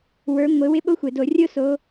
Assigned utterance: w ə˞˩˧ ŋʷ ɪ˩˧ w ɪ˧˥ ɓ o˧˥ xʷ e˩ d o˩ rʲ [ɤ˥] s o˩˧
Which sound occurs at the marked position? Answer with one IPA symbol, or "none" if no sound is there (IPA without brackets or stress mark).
o˥